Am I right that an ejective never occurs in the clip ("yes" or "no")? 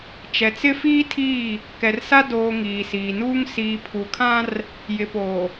yes